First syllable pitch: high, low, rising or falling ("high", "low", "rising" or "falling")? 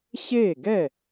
falling